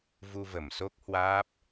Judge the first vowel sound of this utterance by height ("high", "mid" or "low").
high